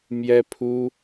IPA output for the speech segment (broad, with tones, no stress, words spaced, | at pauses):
mjɛ˥pʰu˥